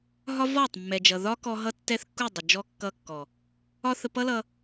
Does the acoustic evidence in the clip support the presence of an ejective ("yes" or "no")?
no